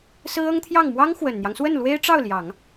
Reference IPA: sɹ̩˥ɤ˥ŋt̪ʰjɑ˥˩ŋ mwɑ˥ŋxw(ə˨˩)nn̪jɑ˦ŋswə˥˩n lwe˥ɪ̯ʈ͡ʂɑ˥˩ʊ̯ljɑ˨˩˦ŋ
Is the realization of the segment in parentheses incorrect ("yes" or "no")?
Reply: no